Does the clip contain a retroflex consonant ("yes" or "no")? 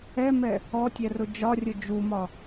no